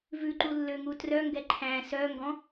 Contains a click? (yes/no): yes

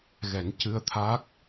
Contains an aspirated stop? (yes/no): yes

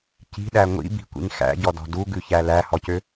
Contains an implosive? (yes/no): yes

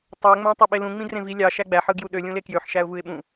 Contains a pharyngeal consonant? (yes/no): yes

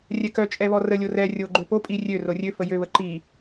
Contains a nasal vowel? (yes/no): no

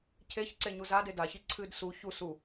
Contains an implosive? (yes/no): no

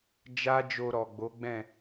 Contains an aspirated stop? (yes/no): no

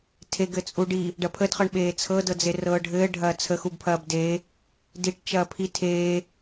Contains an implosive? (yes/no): yes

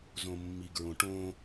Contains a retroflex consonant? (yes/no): yes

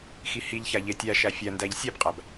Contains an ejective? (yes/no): yes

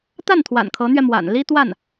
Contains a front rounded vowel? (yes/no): no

